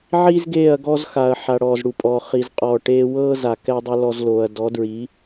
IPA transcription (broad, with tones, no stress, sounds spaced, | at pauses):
ʕ i˦ z ɡ eː˦˨ ɐ̯ ɡ ɔ˦ z x a˨ ɐ̯ ħ a˨ ɽ ɔː˨ z ɽ u˨ pʼ ɔː˨ χ i˨ z qʼ ɔː˨ ʈ eː˧ w ɤː˦ z a˨ k ɛ˦ dˤ u˧ l ɔ˧ z l oː˨ ɐ̯ d ɔ˨˦ d ɹ i˨˦